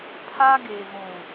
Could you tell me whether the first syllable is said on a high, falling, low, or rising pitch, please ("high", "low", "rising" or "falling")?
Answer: high